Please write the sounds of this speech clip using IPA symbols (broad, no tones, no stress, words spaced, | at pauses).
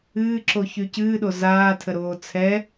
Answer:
ɨːǁoçy cɨːɗo zaːtʰəɾoː t͡sʰɛ